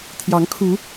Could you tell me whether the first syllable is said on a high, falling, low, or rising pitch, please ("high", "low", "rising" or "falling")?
rising